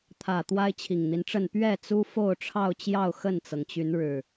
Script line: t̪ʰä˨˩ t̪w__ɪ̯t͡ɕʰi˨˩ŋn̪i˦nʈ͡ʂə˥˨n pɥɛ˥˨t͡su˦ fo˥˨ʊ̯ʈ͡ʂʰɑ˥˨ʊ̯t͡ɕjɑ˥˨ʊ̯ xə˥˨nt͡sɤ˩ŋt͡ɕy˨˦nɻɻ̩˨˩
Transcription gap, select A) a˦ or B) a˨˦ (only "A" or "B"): A